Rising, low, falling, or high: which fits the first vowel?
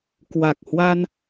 low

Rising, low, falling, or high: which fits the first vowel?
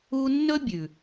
high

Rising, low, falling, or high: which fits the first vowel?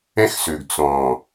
high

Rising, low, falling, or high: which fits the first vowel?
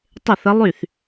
falling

